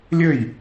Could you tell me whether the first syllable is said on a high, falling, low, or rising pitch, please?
falling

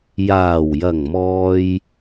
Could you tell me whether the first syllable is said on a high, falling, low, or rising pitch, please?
low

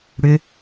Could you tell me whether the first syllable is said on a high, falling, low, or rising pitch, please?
rising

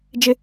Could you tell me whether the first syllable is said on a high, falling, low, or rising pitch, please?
high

